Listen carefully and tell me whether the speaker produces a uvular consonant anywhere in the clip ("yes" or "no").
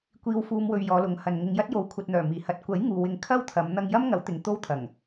no